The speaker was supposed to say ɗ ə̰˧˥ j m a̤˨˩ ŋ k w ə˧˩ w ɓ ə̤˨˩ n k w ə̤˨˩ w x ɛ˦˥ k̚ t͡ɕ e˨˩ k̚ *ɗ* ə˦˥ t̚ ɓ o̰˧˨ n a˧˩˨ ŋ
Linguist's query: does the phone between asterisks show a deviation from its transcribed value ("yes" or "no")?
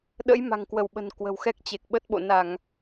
yes